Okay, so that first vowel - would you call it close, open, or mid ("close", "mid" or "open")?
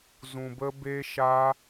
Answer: close